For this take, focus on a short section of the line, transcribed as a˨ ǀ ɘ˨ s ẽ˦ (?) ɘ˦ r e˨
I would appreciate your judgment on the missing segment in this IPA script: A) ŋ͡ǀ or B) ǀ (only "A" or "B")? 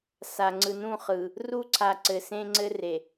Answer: A